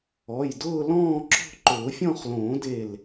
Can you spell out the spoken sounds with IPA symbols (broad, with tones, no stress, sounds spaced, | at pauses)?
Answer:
ɔ˩˧˩ j d ʊː˥˧ l ɔ̃ː˥˧ ǁ ɔ̤˥˧ ǃ ʊː˨˩˦ fʲ ɔ̃˥˧ χ l õː˨˩˦ d e˧˩ l